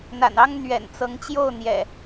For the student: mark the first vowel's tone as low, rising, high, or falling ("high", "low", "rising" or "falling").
low